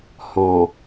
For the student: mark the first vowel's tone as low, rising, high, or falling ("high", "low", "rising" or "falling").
low